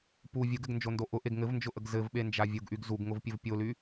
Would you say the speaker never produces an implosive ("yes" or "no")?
no